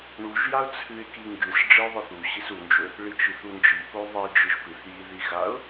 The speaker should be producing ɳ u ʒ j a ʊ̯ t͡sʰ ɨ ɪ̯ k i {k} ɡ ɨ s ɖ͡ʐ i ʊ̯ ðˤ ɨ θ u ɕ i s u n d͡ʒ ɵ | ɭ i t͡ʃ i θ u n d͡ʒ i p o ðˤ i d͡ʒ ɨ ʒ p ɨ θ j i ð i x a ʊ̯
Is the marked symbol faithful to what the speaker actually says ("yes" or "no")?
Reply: no